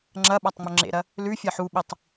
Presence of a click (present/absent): present